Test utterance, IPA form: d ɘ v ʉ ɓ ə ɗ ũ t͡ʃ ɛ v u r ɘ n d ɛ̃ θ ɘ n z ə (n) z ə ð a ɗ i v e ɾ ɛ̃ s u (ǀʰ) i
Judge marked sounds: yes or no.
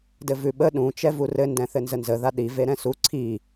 yes, yes

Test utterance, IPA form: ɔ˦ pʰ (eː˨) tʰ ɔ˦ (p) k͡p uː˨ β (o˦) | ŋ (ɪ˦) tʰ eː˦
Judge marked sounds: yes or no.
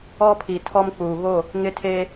no, no, no, yes

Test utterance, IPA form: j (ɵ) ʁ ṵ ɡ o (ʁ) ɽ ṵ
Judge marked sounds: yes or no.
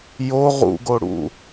no, no

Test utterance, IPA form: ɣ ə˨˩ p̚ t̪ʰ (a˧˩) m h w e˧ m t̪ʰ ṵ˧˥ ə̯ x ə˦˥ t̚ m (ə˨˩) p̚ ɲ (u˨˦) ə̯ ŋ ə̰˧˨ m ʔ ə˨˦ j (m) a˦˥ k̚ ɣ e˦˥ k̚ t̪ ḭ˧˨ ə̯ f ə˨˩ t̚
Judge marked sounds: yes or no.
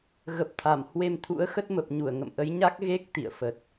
yes, yes, no, no

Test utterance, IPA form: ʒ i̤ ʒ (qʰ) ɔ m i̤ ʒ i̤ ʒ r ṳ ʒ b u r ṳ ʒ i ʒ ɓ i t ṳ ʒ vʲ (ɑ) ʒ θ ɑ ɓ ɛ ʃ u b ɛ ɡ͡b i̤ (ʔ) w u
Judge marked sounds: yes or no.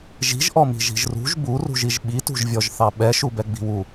no, no, no

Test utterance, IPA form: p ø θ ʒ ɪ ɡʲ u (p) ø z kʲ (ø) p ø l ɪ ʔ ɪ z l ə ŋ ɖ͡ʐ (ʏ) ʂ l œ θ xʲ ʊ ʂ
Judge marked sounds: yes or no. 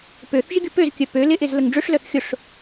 yes, no, yes

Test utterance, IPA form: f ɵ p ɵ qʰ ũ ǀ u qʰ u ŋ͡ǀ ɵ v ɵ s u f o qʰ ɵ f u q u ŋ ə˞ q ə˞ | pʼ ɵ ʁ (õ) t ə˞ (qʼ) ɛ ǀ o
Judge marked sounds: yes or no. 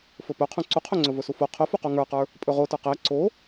no, no

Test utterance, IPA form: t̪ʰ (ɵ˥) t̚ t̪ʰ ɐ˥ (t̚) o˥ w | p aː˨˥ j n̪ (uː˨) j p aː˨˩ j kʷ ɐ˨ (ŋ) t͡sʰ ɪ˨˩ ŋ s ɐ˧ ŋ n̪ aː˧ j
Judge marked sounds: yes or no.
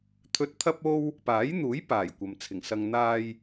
no, no, no, no

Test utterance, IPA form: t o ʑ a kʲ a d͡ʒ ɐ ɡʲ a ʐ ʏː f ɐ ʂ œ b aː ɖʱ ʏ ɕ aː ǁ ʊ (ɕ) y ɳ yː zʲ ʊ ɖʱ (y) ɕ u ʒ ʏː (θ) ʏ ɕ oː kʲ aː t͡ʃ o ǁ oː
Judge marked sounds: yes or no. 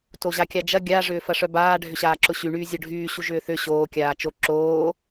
yes, no, yes

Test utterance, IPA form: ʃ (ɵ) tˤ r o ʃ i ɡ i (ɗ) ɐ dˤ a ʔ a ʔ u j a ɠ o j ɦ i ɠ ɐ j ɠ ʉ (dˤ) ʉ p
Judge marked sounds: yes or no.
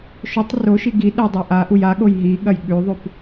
yes, yes, no

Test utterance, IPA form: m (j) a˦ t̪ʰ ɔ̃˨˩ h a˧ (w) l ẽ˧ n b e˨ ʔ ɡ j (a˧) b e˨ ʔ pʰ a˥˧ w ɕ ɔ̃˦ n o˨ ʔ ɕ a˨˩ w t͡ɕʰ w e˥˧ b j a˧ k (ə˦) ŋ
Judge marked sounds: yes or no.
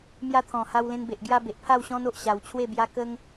yes, yes, yes, yes

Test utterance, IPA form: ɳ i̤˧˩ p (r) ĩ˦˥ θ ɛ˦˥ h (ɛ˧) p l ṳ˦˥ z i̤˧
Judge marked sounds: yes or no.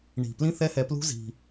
no, yes

